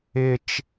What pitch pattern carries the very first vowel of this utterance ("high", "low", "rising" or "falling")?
low